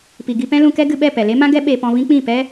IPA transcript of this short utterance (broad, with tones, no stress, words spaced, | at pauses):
pi˨ɡi˧pɛ̃˦lũ˧ kɛ˦ɡɨ˧ɓɛ˦˨ pɛ˨le˦mã˦ɡɛ˦ ɓe˧ pɔ̃˧vĩ˦k͡pĩ˦˨ pɛ˦